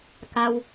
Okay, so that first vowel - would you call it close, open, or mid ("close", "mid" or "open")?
open